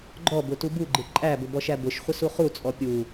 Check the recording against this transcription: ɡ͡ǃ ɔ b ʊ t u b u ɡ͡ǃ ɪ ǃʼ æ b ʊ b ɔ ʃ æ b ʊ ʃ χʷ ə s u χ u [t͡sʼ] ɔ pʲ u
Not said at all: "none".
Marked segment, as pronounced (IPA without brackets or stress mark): t͡sʼ